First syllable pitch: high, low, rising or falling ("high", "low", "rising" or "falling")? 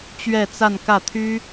falling